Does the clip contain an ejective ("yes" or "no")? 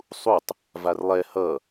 no